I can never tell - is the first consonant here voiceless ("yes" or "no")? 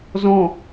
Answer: no